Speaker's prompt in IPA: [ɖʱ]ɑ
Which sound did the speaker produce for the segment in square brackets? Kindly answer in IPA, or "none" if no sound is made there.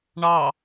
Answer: ɳ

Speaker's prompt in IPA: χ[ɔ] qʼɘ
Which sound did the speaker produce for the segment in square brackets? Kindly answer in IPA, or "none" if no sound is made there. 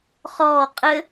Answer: ɔː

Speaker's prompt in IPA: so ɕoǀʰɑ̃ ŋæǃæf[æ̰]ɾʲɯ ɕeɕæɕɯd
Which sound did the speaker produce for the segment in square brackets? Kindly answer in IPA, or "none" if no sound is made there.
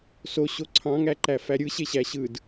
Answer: æ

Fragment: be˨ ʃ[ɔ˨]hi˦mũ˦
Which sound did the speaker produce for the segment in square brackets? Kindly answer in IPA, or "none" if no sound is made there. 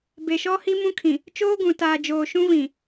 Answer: ɔ˦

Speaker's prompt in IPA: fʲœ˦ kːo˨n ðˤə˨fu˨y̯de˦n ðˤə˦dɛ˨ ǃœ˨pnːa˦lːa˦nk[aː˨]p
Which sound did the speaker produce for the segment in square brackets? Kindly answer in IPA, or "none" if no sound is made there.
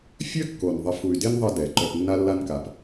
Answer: a˨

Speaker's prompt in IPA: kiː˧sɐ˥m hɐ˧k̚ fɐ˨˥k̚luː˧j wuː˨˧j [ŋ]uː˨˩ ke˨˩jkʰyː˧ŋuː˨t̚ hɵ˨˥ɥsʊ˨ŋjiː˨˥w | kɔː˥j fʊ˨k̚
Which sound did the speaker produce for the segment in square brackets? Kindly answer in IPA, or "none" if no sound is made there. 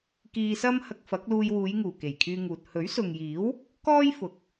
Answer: ŋ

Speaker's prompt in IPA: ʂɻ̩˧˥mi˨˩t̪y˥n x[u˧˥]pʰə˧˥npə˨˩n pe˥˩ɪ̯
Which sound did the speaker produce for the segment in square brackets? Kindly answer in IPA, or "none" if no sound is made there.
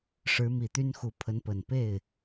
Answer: u˧˥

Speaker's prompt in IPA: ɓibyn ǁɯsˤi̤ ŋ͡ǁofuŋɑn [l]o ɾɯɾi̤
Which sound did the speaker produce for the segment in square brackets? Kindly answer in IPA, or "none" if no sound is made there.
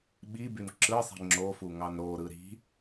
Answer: ɾ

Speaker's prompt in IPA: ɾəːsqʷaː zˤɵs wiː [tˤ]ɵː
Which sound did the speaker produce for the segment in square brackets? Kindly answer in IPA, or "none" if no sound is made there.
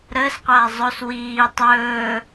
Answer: tˤ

